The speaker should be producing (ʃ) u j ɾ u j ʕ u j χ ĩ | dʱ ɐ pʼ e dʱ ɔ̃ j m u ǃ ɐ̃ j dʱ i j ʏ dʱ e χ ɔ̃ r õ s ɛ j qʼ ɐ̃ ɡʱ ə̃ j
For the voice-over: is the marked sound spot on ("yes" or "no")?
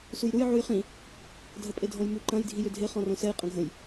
no